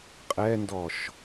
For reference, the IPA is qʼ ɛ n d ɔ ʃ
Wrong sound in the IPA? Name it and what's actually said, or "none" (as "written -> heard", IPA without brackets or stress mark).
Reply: none